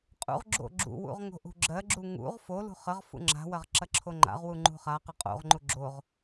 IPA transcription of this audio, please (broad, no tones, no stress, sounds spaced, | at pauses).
qʼ ṵ ʁ ɡ͡ǁ o̰ ɡ͡ǁ ṵ w ṵ ʁ ŋ o̤ ʔ ṳ ɡ͡ǁ ɜ ɡ͡ǁ u ŋ ṵ ʁ f o l ṳ χ ə ʁ f ṵ ŋ͡ǁ a̤ w ɐ ʁ ǁ ɐ ǁʰ o ŋ͡ǃ a̰ ʁ w u ŋ͡ǃ ṳ χ a q ə qʼ o̰ ʁ ŋ͡ǃ u ɡ͡ǁ o ʁ